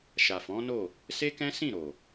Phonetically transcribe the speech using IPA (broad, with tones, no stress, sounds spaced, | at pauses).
ʃ a˨ f ɔ̃˨˦ n o˦˨ | s e˦ k ɛ̃˦ s ĩ˦˨ ɾ o˨